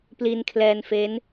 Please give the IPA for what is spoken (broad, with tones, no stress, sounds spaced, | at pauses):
p l i˧ n kʰ l ɛː˧ n f e˦˥ n